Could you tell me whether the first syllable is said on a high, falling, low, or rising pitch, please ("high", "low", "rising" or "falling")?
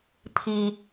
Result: low